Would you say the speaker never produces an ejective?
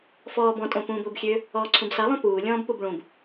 no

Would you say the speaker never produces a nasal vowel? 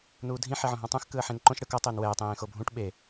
no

